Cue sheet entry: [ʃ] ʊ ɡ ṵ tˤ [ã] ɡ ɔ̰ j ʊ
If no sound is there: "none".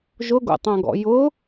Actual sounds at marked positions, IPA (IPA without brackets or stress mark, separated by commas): ʒ, ã